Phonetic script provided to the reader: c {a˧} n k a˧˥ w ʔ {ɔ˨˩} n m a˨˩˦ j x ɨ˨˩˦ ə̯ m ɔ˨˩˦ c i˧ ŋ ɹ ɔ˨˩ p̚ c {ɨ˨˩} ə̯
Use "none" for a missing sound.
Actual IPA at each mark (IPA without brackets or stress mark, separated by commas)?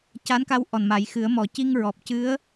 a˧˥, ɔ˨˩, ɨ˧˥